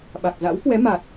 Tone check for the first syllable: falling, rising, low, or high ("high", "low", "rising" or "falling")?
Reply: low